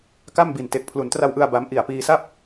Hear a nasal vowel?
no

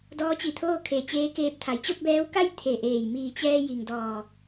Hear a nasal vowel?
no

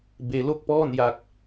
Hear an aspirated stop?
no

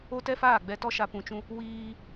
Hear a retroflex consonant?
no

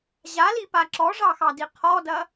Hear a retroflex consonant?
yes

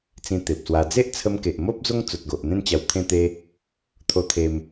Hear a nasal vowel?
yes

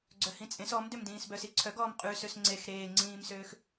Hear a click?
yes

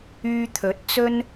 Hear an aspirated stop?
yes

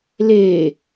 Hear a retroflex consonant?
no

